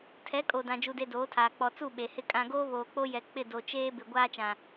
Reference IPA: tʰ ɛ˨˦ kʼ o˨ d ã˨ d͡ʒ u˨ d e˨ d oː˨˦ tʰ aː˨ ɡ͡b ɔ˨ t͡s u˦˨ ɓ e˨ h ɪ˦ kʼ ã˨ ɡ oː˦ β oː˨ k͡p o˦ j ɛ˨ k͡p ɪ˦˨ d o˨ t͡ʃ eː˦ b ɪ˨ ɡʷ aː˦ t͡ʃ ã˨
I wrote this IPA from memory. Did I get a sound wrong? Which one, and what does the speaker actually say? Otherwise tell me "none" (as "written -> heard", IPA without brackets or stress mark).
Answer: ɡ͡b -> k͡p